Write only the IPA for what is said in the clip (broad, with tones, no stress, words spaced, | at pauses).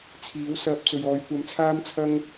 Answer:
t͡sʰiː˨˥wsɐ˧p̚ t͡sɵ˨ɥɔː˨˧jkʷɐ˧mt͡sʰaː˥m t͡sʰɐ˥ŋ